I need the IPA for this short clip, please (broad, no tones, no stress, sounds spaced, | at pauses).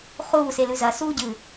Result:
χ uː s e l ʉ z ɐ s uː ɟ ɨ